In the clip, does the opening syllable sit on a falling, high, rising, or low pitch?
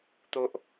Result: high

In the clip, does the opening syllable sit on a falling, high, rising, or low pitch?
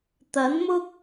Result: rising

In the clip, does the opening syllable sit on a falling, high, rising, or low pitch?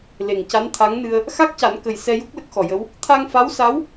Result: low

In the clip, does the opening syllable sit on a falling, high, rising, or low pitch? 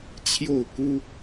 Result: falling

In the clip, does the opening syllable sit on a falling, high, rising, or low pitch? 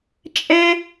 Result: high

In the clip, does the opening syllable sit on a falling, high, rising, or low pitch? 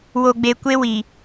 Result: low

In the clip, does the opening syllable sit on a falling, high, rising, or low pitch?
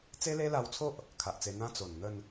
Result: high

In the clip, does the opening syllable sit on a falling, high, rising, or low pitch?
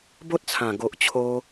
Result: high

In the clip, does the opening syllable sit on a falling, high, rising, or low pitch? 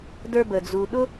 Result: high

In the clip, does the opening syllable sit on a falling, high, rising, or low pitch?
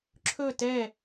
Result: falling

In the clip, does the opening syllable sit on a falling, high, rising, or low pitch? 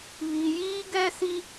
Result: low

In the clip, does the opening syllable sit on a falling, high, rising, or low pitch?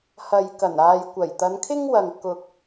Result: low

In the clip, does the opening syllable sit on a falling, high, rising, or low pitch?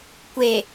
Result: low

